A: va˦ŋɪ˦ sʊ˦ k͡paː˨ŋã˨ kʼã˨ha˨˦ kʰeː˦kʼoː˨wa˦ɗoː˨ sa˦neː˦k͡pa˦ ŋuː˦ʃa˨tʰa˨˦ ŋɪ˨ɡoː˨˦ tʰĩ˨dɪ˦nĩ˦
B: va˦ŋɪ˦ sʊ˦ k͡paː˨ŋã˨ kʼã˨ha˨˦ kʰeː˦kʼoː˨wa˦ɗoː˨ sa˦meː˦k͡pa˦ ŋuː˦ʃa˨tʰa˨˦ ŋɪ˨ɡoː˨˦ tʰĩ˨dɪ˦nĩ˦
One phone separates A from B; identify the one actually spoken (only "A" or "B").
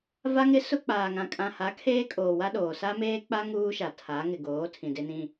B